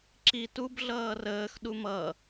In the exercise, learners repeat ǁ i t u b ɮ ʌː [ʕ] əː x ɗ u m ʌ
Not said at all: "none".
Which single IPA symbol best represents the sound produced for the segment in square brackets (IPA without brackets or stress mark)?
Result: r